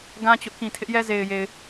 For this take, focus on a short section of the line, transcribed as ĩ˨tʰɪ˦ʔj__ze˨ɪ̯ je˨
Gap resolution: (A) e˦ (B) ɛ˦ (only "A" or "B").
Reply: B